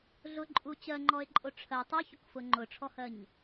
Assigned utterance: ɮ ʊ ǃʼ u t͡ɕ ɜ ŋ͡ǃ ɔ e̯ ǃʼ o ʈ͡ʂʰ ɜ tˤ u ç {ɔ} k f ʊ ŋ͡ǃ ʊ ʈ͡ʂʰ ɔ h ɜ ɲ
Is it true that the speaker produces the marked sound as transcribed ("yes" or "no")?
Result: no